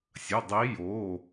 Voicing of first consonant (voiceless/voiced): voiceless